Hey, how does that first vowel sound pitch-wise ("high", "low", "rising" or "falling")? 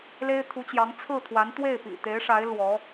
high